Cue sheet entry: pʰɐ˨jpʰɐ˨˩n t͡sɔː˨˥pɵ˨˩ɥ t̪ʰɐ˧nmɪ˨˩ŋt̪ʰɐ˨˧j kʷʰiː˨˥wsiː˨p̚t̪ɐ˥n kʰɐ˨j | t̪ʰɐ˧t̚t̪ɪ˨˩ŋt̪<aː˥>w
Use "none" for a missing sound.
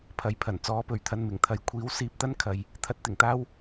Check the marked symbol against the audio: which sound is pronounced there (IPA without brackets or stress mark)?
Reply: aː˥